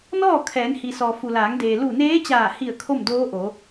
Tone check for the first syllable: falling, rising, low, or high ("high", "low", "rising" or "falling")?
falling